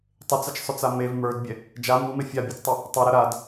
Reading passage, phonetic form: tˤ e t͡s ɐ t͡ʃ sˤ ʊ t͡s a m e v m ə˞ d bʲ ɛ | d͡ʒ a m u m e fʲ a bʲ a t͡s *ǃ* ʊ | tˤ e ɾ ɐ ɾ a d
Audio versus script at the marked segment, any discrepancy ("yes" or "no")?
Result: yes